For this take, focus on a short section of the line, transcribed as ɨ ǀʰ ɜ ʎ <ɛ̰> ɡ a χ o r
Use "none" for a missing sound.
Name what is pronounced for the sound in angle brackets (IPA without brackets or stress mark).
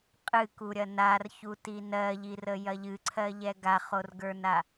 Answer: ɛ